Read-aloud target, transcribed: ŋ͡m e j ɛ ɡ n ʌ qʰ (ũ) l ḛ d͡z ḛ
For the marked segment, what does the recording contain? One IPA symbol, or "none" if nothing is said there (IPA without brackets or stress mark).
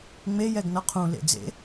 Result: ũ